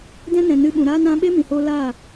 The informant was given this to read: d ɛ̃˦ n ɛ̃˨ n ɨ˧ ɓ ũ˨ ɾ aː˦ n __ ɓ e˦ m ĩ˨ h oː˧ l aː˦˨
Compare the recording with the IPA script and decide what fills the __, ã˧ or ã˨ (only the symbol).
ã˧